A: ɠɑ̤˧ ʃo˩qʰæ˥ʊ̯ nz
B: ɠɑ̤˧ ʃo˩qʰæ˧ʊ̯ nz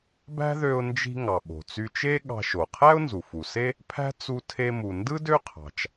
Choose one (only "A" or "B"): A